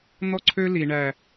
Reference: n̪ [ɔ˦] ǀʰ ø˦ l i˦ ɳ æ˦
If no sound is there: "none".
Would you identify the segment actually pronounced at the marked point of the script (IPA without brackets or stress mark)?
ɔ˦